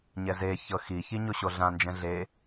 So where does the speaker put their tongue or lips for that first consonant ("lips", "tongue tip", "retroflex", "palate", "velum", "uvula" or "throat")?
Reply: palate